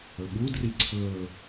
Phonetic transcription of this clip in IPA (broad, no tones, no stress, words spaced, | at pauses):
ɵɓudri ǀʰɵ